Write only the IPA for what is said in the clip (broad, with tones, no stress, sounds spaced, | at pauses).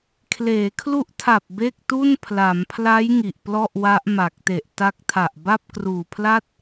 kʰ l eː˩˦ kʰ l u˦˥ ʔ tʰ a˨˩ p̚ b e˥˩ k̚ t u˥˩ n pʰ l a˩˦ m pʰ l a˦˥ j ŋ i˨˩ ʔ p l ɔ˥˩ ʔ w a˦˥ ʔ m a˨˩ k̚ t e˨˩ ʔ t a˦˥ k̚ tʰ a˨˩ ʔ b a˥˩ p̚ k r uː˨˩ pʰ l a˥˩ t̚